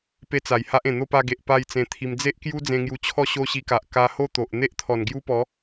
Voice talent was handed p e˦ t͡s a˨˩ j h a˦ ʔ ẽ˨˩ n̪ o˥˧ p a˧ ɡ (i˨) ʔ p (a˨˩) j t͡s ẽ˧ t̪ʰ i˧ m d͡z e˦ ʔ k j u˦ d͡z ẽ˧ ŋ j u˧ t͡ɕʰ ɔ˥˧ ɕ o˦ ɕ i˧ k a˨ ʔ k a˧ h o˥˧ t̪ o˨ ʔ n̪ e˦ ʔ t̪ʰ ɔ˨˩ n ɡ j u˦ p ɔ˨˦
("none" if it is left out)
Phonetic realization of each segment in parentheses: e˨, a˥˧

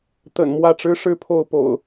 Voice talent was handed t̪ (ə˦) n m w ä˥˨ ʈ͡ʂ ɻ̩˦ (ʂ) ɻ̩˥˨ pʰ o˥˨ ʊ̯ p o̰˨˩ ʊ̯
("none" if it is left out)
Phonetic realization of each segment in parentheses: ə̰˨˩, ʂ

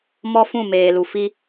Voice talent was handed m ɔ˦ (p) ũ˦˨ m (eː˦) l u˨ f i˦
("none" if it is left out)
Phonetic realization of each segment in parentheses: f, eː˨

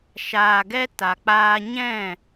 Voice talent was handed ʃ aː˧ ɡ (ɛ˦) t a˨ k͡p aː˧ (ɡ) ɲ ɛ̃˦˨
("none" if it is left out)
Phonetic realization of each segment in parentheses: ɛ˦, none

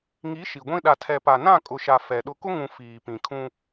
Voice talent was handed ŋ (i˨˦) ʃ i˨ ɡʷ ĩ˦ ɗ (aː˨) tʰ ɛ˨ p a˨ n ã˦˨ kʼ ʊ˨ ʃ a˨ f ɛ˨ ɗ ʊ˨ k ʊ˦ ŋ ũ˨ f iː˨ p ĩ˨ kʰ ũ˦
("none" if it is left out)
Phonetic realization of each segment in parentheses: i˨˦, a˨

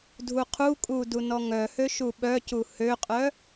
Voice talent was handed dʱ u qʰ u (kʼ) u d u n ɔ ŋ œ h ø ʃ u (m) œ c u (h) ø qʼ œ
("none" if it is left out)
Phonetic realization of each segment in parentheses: kʼ, ɓ, h

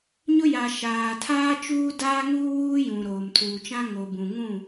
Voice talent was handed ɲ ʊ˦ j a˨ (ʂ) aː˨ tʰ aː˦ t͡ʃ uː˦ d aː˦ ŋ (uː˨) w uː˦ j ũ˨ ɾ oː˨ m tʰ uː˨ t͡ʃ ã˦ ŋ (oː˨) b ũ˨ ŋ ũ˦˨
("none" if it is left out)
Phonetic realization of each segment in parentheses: ʃ, uː˦, o˨

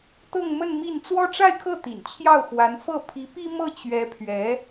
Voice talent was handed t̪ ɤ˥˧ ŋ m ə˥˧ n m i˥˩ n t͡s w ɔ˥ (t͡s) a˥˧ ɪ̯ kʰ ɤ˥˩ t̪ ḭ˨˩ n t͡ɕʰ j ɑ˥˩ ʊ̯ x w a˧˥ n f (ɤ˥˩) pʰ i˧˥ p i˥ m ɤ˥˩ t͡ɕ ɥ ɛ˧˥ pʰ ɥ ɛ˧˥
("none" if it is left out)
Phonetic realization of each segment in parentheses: ʈ͡ʂ, ɤ˥˩

